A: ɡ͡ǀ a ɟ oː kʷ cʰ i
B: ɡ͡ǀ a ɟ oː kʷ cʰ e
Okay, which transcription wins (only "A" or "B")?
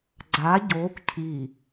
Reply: A